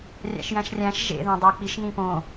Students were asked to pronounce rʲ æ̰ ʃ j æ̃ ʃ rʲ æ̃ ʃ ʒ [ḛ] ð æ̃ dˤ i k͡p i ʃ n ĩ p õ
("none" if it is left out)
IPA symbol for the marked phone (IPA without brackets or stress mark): ḛ